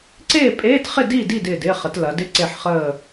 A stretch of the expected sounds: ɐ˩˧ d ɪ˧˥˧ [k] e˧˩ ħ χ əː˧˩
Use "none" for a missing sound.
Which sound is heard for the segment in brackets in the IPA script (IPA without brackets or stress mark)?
ǀ